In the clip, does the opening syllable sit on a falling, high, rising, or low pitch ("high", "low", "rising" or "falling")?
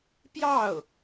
falling